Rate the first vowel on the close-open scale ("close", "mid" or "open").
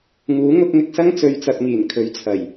close